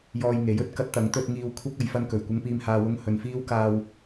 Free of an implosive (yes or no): yes